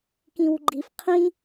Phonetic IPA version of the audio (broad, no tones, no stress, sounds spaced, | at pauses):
k ĩ w ɡ͡ǃ i f qʰ ĩ